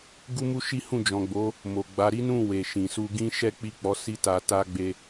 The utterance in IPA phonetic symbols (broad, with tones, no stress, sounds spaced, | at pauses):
ɡ u˦ m u˦ ʃ i˦ h ũ˦˨ d͡ʒ ɔ̃˨ ɡ͡b o˨˦ | m o˨ ɡ͡b a˨˦ ɾ i˦ n ũ˦˨ w e˨ ʃ ĩ˨ s u˧ ɡ ĩ˦ ʃ ɛ˦ k͡p i˦˨ k͡p ɔ˨˦ s i˦ t a˧ t a˦ ɡ͡b e˦